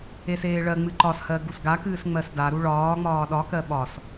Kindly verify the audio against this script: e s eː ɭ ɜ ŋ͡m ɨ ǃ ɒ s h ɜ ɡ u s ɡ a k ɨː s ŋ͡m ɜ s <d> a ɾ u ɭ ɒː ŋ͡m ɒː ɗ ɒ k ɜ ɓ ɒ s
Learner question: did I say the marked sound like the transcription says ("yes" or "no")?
yes